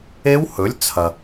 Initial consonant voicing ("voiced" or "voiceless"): voiced